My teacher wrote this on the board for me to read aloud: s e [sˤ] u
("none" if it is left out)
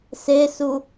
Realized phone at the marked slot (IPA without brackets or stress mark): s